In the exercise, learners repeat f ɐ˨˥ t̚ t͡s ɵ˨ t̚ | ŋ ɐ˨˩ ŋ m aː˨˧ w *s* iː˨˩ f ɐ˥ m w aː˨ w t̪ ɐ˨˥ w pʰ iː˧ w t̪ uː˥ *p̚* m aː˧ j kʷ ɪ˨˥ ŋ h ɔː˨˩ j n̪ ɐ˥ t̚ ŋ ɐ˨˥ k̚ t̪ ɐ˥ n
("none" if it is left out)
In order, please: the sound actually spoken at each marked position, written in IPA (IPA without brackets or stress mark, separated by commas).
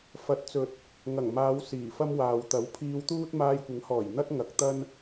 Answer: s, t̚